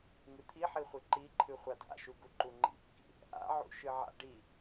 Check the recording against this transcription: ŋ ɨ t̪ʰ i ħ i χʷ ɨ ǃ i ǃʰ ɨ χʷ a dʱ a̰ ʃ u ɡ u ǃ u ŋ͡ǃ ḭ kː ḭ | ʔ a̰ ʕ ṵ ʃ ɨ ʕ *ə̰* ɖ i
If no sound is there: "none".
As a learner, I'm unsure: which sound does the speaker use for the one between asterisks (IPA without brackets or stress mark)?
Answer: a̰